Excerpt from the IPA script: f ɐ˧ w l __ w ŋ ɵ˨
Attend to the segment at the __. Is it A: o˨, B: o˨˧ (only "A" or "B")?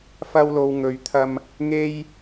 A